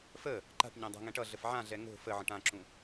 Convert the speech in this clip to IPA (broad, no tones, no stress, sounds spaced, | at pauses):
f ə | ǃ a̤ ʈ ɲ õ dˤ a̤ ŋ ɛ̃ ʈ ʌ ɮ ə f ʕ ã ɮ ɛ ŋ o̤ f ə ʕ ə̃ ʈ ã ǁ ũ